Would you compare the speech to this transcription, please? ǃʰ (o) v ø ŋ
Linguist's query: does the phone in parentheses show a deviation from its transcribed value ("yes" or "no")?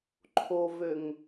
no